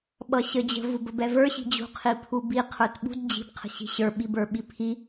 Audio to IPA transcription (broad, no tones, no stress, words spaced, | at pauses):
ɓʌɕəd͡ʑə̤ vubəbɛvə˞ ɕi̤d͡ʑṳ qʰipʰubi qʰə˞tɓṳd d͡ʑi̤b qʰə̤ɕi̤ɕə˞ ɓibə˞ɓipʰi